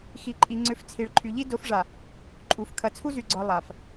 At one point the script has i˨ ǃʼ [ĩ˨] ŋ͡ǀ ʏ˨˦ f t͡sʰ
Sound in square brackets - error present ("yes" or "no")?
yes